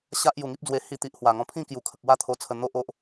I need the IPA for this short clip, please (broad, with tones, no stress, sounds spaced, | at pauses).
ɕ a˦ ʔ j u˨˩ ŋ i˦ p̚ d͡z w e˧ h i˧ t̪ i˨ ʔ h w a˨˩ ŋ ɔ̃˧ pʰ ĩ˥˧ k j u˨˩ kʰ ə˨ k̚ w a˥˧ t̪ʰ o˧ t͡sʰ ə˧ n̪ o˦ ʔ o˦ ʔ